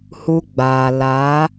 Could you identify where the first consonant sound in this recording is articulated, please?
glottal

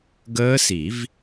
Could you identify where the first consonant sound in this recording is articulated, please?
velar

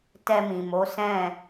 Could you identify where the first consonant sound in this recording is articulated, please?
alveolar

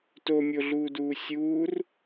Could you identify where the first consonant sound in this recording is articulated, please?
alveolar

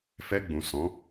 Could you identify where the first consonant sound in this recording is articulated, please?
labial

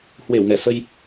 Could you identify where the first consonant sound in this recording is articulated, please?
glottal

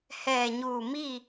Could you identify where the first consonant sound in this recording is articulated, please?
glottal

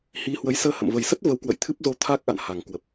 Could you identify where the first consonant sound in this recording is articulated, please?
glottal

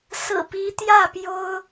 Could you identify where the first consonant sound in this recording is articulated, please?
alveolar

